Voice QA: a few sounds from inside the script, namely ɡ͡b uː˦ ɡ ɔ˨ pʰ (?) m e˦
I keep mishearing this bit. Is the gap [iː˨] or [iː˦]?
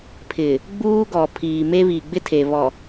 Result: iː˨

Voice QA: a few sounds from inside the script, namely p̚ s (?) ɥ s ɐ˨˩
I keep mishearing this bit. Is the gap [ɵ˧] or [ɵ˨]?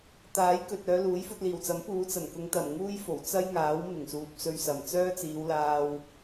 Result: ɵ˧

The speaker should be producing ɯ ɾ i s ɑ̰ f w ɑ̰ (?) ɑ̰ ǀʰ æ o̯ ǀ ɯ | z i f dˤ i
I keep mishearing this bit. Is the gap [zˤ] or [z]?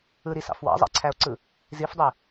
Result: zˤ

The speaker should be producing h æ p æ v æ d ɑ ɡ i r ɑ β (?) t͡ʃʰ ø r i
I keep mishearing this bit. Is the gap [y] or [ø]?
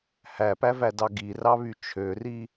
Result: y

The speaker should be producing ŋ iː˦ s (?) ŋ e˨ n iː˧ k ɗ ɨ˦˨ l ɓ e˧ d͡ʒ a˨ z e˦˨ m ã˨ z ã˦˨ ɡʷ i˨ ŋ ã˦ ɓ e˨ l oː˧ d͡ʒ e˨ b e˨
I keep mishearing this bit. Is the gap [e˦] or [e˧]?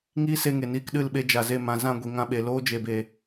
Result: e˧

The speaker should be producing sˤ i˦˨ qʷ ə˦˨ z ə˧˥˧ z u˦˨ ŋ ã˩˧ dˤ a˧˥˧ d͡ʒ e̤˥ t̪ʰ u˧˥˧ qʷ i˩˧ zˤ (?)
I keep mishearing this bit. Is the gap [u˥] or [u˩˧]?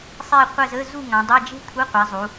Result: u˩˧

